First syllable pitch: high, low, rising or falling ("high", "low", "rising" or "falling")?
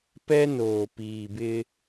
high